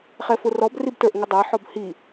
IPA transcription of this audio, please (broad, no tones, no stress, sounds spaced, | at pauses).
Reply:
χ ɛ f ʊ r ɔ b r i b t ə˞ ʔ ŋ ə dˤ æ ħ ɔ b h i